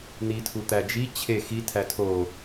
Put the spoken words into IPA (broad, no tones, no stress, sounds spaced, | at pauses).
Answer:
n̪ i tʰ u t̪ æ d͡ʒ i t͡ɕʰ e x i tʰ æ tʰ o